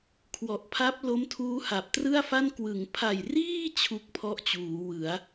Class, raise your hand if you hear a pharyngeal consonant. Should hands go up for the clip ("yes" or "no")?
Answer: no